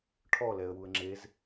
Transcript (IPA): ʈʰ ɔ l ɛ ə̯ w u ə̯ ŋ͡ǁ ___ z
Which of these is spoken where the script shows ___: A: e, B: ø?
A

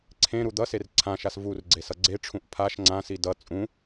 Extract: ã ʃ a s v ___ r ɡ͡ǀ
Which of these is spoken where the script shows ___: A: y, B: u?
B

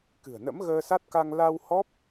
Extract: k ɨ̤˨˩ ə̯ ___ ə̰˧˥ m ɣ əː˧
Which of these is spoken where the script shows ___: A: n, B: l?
A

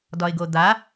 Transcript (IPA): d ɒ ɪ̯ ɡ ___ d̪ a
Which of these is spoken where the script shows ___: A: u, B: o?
B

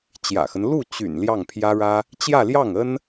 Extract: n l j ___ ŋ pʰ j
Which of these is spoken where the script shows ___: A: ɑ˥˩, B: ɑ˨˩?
A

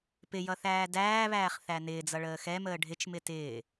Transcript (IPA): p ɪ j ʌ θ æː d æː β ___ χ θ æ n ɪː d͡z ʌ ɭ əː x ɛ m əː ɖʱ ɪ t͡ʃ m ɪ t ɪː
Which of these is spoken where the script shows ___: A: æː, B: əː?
A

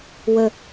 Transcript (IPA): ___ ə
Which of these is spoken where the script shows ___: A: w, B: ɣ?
A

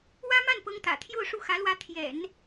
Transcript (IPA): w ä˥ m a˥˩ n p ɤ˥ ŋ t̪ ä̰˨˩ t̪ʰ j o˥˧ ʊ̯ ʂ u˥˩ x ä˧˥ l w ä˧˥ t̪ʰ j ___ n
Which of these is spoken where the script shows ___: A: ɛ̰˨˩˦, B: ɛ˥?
A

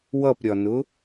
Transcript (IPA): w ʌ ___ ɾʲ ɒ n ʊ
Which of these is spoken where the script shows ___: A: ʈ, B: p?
B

